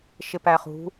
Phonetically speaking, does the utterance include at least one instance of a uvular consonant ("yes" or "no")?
yes